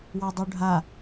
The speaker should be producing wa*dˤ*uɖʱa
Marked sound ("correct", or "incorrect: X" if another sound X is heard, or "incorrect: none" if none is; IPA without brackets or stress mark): correct